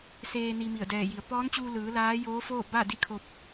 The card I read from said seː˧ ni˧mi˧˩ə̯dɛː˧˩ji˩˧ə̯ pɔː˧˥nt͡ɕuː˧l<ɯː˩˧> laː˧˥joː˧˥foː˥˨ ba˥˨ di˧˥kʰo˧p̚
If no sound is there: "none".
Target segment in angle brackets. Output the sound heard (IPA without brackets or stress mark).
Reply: ɯː˩˧